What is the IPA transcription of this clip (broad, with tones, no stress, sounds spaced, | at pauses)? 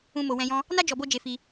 ũ˧ m o˨ w ɛ̃˧ j ɔ̃˦ | n a˦ d͡ʒ ɔ˧ b o˦ d͡ʒ e˧ f i˧